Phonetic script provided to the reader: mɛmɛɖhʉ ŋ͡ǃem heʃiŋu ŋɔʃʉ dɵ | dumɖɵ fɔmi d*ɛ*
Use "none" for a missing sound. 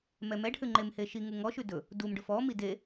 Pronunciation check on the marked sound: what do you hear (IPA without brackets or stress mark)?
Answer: e